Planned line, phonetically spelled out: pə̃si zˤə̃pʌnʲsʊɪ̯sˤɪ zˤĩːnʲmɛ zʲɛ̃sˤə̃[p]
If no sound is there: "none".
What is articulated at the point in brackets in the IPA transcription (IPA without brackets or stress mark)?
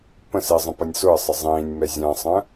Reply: none